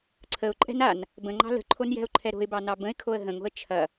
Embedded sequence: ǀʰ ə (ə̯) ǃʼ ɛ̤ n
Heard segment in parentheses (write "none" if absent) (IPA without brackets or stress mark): ʊ̯